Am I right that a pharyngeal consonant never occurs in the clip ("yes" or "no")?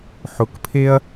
no